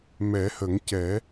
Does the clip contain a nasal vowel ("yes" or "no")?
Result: no